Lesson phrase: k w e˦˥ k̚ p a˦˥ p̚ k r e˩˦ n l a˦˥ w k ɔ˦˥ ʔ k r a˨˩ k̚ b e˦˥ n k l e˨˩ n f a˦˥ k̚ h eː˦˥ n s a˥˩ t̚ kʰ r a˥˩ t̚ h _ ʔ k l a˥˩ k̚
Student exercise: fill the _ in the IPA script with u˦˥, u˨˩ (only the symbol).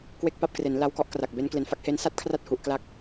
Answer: u˨˩